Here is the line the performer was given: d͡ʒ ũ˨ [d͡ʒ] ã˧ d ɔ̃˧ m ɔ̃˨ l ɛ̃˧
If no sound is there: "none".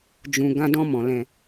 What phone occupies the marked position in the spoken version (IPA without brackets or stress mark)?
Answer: ɡ